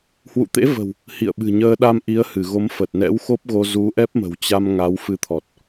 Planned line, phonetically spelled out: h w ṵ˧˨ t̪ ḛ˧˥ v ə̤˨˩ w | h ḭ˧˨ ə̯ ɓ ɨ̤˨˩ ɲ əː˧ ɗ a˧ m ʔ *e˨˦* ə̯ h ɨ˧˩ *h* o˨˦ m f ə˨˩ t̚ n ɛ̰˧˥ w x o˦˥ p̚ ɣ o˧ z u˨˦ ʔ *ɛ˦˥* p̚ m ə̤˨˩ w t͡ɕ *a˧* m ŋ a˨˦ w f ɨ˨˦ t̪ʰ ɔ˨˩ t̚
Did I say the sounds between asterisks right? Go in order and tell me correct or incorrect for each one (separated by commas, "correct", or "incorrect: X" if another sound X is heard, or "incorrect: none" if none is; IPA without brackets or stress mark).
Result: incorrect: i˨˦, incorrect: ɣ, correct, correct